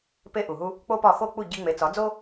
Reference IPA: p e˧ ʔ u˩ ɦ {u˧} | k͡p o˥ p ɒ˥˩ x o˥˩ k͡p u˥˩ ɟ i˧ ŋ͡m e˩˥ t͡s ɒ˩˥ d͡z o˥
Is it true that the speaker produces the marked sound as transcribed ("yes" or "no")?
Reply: yes